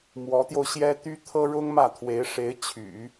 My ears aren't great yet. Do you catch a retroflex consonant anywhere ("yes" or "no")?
yes